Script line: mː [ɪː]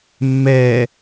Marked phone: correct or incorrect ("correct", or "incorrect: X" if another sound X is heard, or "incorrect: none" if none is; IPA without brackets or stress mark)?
incorrect: ɛː